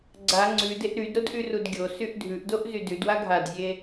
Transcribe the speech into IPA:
ɡ͡ǀ a ŋ͡ǀ ʉ d e ʔ ɾ y d ɾ o d ʔ y r u d ɡʲ o s y ʔ dʱ ʉ ʔ d o ʔ z y d ʉ d w a ɡʱ a d zʲ e

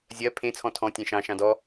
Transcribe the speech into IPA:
zʲ ɜ pʰ ẽ t͡sʰ ɔ̃ tʰ ɔ̃ tʲ ẽ ʃ ɑ̃ ʃ ɑ̃ d ɔ

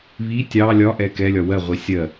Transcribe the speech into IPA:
β i tʲ ɑ lʲ ɒ ʔ ɛ k ɛ lʲ ɒ w ɜ ʁʷ i sʲ ɜ

